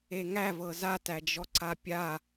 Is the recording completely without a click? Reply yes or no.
no